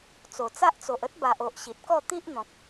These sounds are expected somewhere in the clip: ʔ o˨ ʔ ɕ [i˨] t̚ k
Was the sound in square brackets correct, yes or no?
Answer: yes